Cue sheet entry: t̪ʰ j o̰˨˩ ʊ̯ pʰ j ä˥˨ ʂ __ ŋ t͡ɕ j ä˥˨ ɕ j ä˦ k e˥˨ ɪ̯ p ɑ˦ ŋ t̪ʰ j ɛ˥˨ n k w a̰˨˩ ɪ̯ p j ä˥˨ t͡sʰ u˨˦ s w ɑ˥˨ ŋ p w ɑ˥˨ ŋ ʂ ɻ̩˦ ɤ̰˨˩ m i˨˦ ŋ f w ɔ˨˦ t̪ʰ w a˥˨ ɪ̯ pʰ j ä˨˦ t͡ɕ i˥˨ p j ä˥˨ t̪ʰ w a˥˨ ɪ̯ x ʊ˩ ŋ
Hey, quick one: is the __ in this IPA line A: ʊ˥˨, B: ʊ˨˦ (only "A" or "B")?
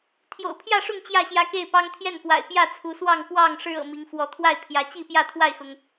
A